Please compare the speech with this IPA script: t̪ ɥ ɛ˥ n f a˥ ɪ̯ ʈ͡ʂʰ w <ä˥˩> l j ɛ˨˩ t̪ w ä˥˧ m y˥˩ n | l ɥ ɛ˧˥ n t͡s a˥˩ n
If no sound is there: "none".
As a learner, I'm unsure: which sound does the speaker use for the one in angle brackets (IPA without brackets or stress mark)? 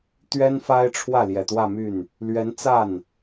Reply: ä˥˩